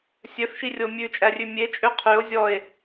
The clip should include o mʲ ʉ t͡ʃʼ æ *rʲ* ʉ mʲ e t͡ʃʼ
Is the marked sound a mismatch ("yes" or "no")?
no